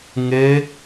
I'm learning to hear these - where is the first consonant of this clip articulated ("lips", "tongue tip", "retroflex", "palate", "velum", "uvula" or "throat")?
velum